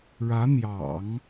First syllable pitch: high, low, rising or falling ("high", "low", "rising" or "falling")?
rising